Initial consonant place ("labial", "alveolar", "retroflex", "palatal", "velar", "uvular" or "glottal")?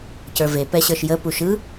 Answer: palatal